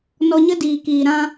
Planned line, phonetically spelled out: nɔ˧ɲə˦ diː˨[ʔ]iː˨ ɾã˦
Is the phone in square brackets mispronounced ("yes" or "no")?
yes